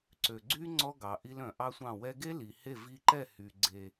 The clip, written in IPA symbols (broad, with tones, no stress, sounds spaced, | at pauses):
ǀ ø˨ ɡ͡ǀ y˦ ŋ͡ǀ ɔ˦ ɡ ɑ˨ ʔ i˧ l œ̃˨ ʔ ɑ˦ sʷ ɑ̃˦˨ w ɛ˧ ɡ e˦ l i˨ h e˦˨ v i˧ ǃ ɛ˦˨ h y˨ ɡ͡ǀ e˨